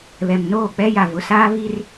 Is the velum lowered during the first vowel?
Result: no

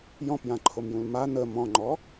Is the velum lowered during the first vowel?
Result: yes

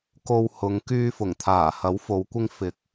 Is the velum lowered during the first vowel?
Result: no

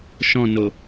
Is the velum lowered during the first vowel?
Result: yes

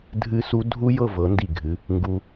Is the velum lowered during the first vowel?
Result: no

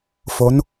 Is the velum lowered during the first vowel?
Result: no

